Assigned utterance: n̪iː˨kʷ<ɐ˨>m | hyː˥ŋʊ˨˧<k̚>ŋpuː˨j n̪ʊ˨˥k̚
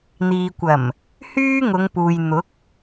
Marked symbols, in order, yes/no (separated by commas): no, no